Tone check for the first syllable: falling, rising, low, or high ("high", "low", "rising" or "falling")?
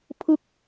falling